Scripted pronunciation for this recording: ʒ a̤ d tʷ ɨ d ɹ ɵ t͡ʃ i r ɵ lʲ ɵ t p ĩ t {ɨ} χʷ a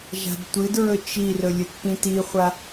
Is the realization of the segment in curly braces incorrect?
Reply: yes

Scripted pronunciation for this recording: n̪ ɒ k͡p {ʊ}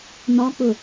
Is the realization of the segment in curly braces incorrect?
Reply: no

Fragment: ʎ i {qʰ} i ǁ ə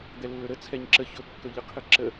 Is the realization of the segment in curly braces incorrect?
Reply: no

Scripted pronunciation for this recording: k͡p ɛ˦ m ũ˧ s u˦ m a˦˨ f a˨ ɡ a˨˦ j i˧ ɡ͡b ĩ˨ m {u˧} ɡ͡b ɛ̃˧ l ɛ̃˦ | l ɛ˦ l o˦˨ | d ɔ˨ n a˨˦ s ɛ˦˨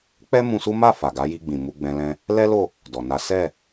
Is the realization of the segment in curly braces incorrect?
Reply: no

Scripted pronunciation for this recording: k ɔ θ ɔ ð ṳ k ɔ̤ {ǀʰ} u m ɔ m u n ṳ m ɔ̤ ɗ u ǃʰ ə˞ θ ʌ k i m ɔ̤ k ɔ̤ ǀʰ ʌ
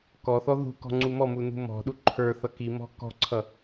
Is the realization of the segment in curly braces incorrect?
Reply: yes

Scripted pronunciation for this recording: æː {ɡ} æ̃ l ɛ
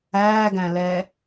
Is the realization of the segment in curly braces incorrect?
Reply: no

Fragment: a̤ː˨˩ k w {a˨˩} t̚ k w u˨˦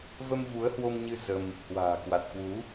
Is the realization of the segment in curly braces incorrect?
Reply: no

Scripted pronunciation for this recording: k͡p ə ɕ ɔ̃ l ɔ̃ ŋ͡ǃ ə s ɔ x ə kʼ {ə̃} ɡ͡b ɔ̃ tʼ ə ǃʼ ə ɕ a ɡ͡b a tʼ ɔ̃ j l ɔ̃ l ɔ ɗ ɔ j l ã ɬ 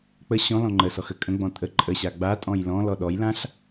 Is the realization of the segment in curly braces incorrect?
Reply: no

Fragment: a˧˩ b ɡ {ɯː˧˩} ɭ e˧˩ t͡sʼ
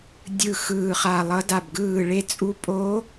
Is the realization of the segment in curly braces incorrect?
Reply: no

